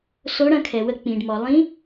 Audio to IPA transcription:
s o˧˥ ɽ ɐ̃˧ kʰ ɛ˩ w ə˧ k͡p ĩ˩ ɖ m ɔ˩ lˠ ĩ˧˥

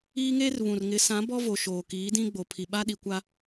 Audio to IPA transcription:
iː˦ ŋ eː˦ r β ũ˨ r ŋ ɪ˨˦ s ã˨˦ b ɔ˦ v o˨ ʃ oː˨ k iː˨˦ d ĩ˦ ɡ͡b o˨ pʰ i˨ ɓ a˦ ɗ i˨ kʷ a˦

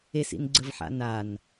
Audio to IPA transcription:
e s ḭ n ɡ͡ǀ ə v ħ a̰ n a n

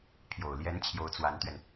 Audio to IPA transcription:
pʰ j o˨˩ ʊ̯ l j ɛ˧˥ n t͡ɕʰ j o˧˥ ʊ̯ t͡s w a˧˥ n t̪ ɥ ɛ˧ n

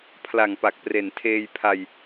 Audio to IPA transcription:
pʰ l a˨˩ ŋ p a˨˩ k̚ p r e˨˩ n tʰ eː˧ j pʰ a˧ j

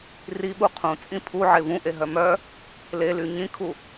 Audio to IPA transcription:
r i ɓ u qʰ ũ t͡sʼ ĩ pʰ u ʕ e v ũ ʔ e ɦ œ m œ | l e l y ɲ ĩ kʰ u

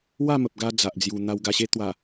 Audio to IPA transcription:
w a˥˧ m ə˨ p̚ ɡ a˧ d͡z a˨ ʔ d͡z j u˨˩ n̪ a˧ w ɡ a˧ ɕ e˦ t̪ w a˨˩

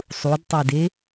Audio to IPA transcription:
sˤ u d tˤ ə˞ d e

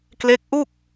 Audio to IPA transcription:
k l e˦˥ k̚ ʔ u˥˩ k̚

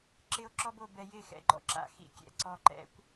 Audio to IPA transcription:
ǁ ɪ˦ o̯ ǁ ɔ˦ b o˨ b ɛ˧ j ɪ˦˨ x ɛ̰˨ ɡ͡ǃ ɔ̰˦ ǁ a̰˨˦ x ḭ˦ kʲ ɛ̰˧ ǀ ɔ˧ ǃ ɛ̰˦ kʷ

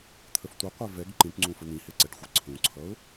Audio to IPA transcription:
t̪ʰ ə f tʷ ʌ qʷ ɛ v ɛ ɡ ǃ ĩ ʈ ŋ͡ǀ ũ f ə n̪ ĩ h e ǀ ɛ ʈ xʷ e ǀʰ ũ ǀʰ ʌ ʊ̯

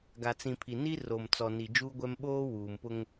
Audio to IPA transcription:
ɡ a˨ t͡s ĩ˨ pʰ i˨ n i˦ r o˨ m t͡s ɔ˨ n i˨ d͡ʒ uː˦ ɡʷ ɛ˦ m ɓ oː˦ w uː˨ m p ʊ˦ ŋ

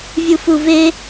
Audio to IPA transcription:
vʲ u f u v e

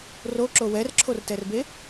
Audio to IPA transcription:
r o ǁ o w ɛ r ǁʰ o r t ɛ r b e

